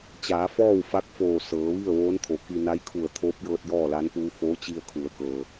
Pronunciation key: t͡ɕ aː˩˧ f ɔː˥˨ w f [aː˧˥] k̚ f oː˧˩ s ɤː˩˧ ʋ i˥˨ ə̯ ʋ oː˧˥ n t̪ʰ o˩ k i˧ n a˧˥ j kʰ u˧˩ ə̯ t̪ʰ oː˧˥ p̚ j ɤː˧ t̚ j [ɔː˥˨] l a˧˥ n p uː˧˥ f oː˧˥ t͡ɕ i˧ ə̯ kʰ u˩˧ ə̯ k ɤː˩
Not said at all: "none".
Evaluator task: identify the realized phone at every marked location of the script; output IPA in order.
a˧˥, ɔː˥˨

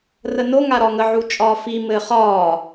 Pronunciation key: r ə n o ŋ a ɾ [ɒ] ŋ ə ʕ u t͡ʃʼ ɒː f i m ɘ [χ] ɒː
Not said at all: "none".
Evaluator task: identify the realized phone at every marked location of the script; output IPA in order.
ɒ, χ

